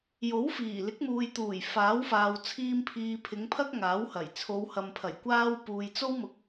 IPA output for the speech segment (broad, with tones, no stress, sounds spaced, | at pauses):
j o˨˥ w f iː˨˩ l ɪ˨˥ k̚ m uː˨ j t̪ uː˨˩ j f aː˨˥ w f aː˨ w t͡sʰ iː˧ m pʰ iː˨ pʰ ɪ˨˧ ŋ pʰ ɐ˥ k̚ ŋ aː˨˥ w h ɐ˨˩ j t͡sʰ o˨˧ w h ɐ˨ m pʰ ɐ˨˩ j kʷ aː˥ w p uː˨ j t͡s o˥ w m ʊ˨˥ k̚